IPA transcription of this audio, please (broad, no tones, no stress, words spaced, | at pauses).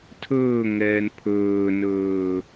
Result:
tʰɵːŋɛːn pʰɵːnɵː